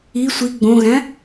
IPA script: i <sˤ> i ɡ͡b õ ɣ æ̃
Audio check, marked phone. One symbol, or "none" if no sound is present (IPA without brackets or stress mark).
sʷ